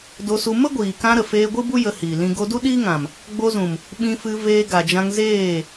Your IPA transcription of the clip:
d o˧ s u˧ m ə˦ ɡʷ iː˨ k ã˧ ɾ ə˨ f eː˧ ɡʷ ɨ˦ b u˦ j ə˧ h iː˨ l ĩ˧ ɡ o˧ d u˦ ɗ iː˦ ŋ ã˨ m | ɡ͡b o˧ z ũ˨ m | ɓ ĩ˧ f ɨ˧ v eː˧ ɡ a˨ d͡ʒ ã˧ ŋ z eː˦˨

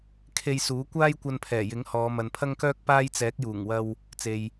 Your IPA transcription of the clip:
kʰ e˧ j s uː˨˥ kʷ aː˥ j kʷ ɐ˧ n pʰ ɛː˨˩ j ɪ˨˥ ŋ h ɔː˨˧ m ɐ˨ n pʰ ɐ˥ ŋ k œː˥ k̚ p aː˥ j t͡s ɛː˨˥ k̚ j uː˨˩ ŋ w ɐ˧ w | t͡s e˨ j

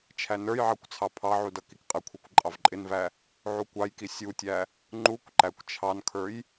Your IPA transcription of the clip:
t͡ʃʰ æ n ə˞ j ʕ ɑ kʷ t͡sʰ ɑ pʰ ɑ ʕ u d ʌ k i k qʼ ɪ kʷʰ i kʷ ǃʼ ɑ v ǃʼ ɪ n v æ | ʕ u kʷ ɑ j k i sʲ u tʲ æ | ŋ͡ǃ u kʷ ǃ æ kʷ t͡ʃʰ ɑ n kʰ ə˞ j

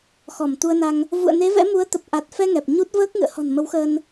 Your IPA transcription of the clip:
x ɔ˧˩ m t̪ u˧ ə̯ n a˧ ŋ | v ṵ˧˨ ə̯ n e˨˦ v ɛ̰˧˥ m u˨˦ ə̯ t̪ ə˨˩ p̚ ʔ a˨˩ t̚ f ɛ˧ ŋ ɛ˨˩ p̚ ɲ u˦˥ t̚ v əː˦˥ k̚ ŋ ɨ̰˧˨ ə̯ h ɔ̤˨˩ n m ə˨˦ w x əː˧ n

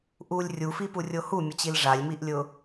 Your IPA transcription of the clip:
ʔ u lʲ rʲ u f i p u rʲ o h u mʲ ʊ t͡ɕ i l ʐ a lʲ m i ʔ lʲ ʊ

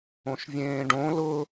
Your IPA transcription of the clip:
õ ʃ vʲ ẽː ɖ õ l ʊ

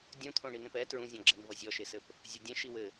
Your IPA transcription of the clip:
dʲ ũ t̪ʰ õ ɳ i n ẽ p ɛ t ɹ ũ zʲ ɔ̃ ɡ͡ǁ ɛ n v ʌ zʲ ɔ ʃ e s ɘ p | zʲ o dʲ ɛ̃ ʃ i w ɘ

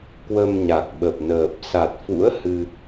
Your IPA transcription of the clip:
k w ə˧ m ɲ a˨˩ k̚ ɓ ə˨˩ p̚ n əː˨˩ p̚ s a˨˩ t̚ f ṵ˧˥ ə̯ h ɨ˧

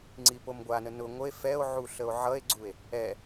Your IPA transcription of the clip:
ŋ͡ǀ i p o m ɡʷ a n ə n ʊ ŋʷ ə e̯ f ɛ o̯ ʕ u ɬ ə o̯ ʕ ʌ e̯ ɡ͡ǀ u e̯ | ɛ

